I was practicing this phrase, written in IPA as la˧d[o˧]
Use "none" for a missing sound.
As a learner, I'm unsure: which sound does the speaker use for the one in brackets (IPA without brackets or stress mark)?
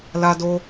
o˧